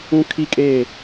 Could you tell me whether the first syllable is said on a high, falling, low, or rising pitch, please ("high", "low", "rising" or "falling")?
high